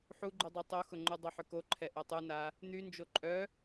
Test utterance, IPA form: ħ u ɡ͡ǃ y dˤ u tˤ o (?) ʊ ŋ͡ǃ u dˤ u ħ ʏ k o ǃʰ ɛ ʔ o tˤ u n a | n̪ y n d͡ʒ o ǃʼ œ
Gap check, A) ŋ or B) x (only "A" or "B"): B